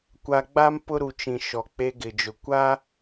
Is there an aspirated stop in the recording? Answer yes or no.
no